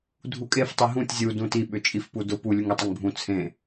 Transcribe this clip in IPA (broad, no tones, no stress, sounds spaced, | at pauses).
dʱ u kʼ e f tˤ i ɦ ũ tʲ zʲ u d ũ t i ɓ ʏ t͡ʃʼ i f p u d ʊ p u lʲ u ŋ e tˤ ʊ ŋ bʱ ũ t͡sʰ ẽ